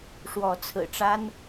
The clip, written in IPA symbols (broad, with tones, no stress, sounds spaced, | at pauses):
ʂ w ɔ˨˦ t͡sʰ ɹ̩˨˩ ʈ͡ʂ a˦ n